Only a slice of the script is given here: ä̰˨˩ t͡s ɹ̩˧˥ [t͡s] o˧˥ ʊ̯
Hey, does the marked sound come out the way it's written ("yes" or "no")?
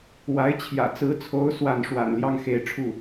no